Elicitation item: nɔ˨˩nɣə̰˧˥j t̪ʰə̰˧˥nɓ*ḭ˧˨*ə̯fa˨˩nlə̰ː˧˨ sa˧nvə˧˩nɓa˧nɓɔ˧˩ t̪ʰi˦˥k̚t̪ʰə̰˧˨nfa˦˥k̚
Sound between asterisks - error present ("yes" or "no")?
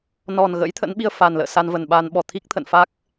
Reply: yes